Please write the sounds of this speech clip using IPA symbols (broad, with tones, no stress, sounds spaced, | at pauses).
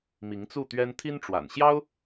m i˧˥ ŋ t͡s u˥˩ t̪ ɥ ɛ˥ n t̪ʰ i˥ n ʈ͡ʂ w a̰˨˩ n ɕ j ɑ˥ ʊ̯